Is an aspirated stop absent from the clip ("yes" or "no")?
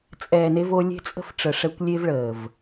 yes